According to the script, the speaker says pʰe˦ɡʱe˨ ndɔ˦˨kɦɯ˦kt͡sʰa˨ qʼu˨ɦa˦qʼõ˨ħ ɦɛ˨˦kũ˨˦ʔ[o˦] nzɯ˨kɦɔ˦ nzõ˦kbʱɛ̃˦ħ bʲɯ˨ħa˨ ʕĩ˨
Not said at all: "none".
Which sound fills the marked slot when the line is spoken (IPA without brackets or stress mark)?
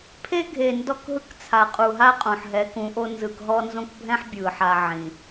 o˦